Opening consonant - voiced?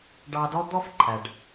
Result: yes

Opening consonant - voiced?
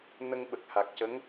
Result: yes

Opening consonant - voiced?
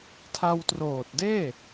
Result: no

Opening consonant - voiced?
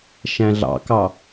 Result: no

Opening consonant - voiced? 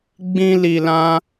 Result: yes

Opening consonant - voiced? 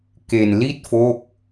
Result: no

